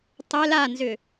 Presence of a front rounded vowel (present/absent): present